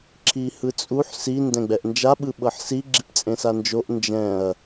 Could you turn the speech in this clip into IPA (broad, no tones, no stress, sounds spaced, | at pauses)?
ǁʰ i h ɯ t͡sʼ u ħ s i n d ɛ̃ ɡ͡b ɛ ʔ n d͡ʒ a ɓ ɯ ɓ ɤ ħ s i ɡ͡ǁ i p t͡sʼ ẽ s a n d͡ʒ o ʔ n d͡ʒ ɛ̃ ɐ̯